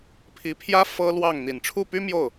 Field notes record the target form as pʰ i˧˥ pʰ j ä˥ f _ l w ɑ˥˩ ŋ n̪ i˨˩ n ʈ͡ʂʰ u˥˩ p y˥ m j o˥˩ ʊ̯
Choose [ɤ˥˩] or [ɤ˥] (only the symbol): ɤ˥